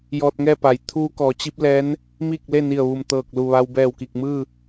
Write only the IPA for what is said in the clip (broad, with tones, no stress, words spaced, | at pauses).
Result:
jɔː˧t̚ŋɛː˥˨pa˩˧j t̪ʰuː˧kɔː˩˧ t͡ɕi˧˥p̚lɛː˧˥n | miː˥˨k̚le˥˨ni˧˩ə̯ ʋu˧˩mt̪ɤː˧˩k̚lu˧˩ʋa˧w bɛː˧˩wki˧˩k̚mɯː˥˨